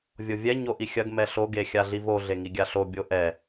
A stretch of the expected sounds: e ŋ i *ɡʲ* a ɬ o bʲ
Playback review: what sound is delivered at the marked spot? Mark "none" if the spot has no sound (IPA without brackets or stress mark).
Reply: ɡʲ